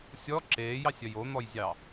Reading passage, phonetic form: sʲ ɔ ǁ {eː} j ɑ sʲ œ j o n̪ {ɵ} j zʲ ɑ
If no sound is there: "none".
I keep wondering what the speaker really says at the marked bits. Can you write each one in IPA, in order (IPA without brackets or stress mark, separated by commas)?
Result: eː, ɔ